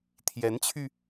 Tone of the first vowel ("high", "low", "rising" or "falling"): rising